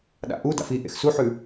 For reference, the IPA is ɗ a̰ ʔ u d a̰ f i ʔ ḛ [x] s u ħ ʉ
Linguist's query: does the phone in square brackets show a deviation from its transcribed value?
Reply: no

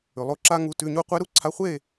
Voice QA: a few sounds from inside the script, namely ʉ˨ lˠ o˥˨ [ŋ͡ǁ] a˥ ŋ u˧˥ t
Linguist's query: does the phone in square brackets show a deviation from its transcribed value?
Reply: yes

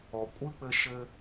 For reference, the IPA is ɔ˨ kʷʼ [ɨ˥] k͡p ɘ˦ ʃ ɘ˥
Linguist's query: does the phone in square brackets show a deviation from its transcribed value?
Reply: no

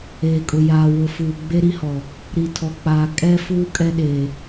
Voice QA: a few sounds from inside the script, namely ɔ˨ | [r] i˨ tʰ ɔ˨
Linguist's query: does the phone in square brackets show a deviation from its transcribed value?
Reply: yes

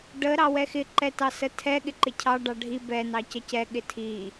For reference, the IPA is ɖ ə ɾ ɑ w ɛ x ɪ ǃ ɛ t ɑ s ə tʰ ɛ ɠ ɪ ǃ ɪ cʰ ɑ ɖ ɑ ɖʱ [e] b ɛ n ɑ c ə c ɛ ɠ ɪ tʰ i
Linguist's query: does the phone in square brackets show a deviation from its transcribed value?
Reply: yes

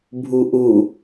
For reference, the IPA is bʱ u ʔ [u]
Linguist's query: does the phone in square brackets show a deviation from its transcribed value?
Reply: no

